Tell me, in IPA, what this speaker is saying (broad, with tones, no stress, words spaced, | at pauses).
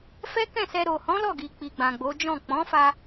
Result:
fɛ˦kɛ̃˦˨sɛ˧ ɾo˨hɔ̃˨˦ lɔ˦˨ɡi˨k͡pi˨ ɡ͡bã˨ɡ͡bo˨˦d͡ʒɔ̃˦˨ k͡pɔ̃˨˦fa˧